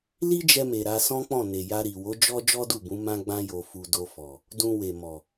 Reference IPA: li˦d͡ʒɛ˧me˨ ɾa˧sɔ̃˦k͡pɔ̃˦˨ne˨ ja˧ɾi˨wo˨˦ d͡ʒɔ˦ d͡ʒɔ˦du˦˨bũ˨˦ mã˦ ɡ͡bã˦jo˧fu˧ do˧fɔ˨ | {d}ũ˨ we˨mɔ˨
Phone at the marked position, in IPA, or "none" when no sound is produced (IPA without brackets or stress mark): d